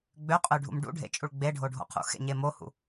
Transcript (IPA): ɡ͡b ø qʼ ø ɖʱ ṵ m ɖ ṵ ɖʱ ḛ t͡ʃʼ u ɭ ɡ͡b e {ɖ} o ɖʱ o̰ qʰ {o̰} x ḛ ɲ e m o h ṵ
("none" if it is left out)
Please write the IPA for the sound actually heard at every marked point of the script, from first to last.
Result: ɖʱ, ṵ

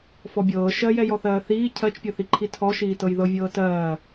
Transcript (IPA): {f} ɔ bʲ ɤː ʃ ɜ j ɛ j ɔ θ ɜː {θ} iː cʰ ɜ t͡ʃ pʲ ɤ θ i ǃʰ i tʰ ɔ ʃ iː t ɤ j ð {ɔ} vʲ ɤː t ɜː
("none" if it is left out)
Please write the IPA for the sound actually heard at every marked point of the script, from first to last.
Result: f, θ, ɤ

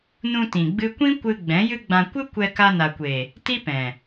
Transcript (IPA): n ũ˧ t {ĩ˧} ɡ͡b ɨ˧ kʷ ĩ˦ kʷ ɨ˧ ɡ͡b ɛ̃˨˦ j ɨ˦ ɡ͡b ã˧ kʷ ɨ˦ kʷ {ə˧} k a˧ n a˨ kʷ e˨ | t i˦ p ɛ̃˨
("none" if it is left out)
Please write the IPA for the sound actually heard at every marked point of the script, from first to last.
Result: ĩ˨, ɛ˧

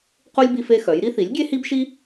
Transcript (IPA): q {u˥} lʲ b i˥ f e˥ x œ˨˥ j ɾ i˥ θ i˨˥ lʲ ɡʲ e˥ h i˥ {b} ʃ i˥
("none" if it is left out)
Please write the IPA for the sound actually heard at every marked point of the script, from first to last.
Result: u˥, b

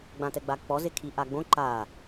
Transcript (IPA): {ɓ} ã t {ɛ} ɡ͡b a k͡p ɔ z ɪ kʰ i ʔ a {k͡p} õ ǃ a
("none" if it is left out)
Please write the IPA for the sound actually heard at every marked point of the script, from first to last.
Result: ɡ͡b, ɛ, ɡ͡b

